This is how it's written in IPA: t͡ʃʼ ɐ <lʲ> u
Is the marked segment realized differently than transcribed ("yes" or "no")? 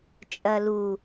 yes